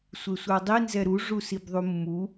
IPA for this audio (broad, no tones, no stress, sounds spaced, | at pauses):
sʷ e sʷ a dˤ i n z ɛ ɾ u ʐ u s i b ðˤ u mː u